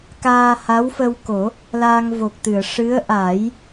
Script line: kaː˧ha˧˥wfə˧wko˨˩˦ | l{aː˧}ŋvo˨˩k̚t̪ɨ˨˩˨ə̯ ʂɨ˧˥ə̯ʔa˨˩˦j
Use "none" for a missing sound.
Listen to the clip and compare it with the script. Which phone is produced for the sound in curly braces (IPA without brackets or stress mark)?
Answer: aː˧